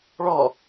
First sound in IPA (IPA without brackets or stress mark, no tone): ɭ